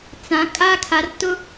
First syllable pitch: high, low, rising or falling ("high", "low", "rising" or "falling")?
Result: rising